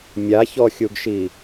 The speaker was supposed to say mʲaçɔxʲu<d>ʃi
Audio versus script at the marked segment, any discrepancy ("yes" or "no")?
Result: yes